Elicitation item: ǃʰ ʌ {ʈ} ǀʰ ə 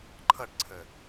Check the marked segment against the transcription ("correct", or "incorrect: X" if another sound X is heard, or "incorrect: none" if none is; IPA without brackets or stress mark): correct